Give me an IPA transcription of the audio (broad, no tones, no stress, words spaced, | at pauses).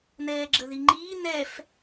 nɛːɡ͡ǁəðiŋ͡ǃiː nɛf